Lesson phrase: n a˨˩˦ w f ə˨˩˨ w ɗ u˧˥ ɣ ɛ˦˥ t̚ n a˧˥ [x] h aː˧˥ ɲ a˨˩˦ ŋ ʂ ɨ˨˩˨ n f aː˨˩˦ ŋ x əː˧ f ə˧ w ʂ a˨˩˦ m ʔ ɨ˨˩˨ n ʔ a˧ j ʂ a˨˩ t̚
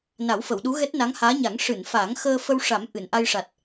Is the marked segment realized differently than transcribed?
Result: yes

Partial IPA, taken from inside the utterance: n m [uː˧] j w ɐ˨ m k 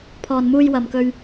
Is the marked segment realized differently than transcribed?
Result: no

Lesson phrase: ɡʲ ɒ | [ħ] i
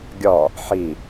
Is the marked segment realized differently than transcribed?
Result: no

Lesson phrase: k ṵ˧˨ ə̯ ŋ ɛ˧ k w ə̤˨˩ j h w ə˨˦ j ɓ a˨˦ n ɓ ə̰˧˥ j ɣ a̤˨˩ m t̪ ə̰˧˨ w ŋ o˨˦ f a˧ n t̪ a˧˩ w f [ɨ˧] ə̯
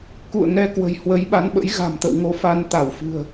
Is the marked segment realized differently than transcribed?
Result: yes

